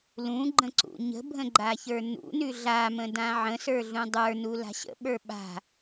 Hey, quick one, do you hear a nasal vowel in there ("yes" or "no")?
yes